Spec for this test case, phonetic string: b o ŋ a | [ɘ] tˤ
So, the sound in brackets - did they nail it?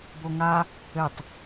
yes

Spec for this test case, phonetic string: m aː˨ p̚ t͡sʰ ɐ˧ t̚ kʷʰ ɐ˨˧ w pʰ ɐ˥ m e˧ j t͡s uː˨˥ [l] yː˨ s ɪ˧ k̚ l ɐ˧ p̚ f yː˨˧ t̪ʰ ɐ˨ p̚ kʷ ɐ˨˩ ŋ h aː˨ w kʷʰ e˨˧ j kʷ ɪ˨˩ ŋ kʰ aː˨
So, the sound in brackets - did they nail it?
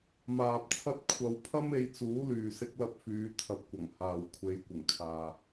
yes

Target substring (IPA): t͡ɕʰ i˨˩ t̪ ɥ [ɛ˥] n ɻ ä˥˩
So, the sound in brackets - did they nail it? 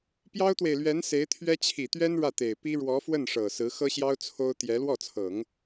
yes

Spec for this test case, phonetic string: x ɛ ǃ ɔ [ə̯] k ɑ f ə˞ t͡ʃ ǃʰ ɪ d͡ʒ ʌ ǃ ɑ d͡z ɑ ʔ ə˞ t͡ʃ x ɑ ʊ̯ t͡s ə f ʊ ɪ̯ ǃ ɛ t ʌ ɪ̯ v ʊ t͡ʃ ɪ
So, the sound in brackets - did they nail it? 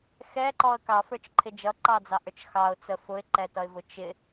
yes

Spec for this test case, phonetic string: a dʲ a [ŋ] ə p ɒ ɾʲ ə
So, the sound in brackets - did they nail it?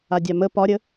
no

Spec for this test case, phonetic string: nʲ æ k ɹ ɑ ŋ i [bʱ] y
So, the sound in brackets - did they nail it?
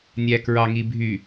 yes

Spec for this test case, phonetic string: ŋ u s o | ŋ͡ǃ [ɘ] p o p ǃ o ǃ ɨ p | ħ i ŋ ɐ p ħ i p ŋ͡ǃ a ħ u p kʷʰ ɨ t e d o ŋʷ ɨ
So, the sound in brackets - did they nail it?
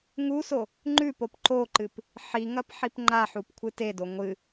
no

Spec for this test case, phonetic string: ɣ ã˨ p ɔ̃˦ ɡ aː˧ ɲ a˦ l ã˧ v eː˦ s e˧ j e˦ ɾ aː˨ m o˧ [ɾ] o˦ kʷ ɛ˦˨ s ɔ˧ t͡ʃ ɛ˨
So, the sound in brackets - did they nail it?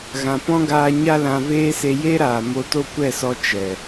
no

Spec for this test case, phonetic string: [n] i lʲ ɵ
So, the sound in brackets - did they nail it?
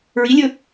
no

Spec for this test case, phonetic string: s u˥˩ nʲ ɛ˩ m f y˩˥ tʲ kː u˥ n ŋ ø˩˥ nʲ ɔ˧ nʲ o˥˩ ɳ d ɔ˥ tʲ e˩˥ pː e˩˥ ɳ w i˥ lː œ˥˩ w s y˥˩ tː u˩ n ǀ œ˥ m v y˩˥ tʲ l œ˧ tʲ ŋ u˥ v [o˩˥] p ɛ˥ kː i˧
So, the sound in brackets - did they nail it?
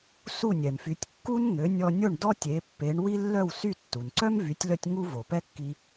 no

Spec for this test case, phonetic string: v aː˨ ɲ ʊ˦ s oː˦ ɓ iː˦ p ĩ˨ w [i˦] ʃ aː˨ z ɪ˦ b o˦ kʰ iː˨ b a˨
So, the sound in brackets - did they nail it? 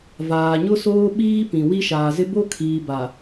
yes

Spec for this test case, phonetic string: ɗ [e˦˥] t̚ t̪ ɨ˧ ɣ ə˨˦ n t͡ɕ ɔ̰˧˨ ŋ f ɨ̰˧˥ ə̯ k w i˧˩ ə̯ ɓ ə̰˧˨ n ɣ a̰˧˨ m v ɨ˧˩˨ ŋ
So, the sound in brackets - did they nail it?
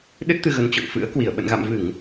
no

